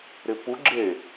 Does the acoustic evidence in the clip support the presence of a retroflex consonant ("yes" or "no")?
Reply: no